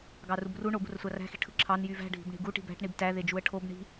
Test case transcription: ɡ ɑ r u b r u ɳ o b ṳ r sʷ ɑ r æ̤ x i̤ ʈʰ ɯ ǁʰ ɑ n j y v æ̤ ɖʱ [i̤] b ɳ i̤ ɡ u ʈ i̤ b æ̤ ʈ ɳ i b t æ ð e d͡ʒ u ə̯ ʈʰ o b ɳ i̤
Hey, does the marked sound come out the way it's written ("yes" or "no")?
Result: yes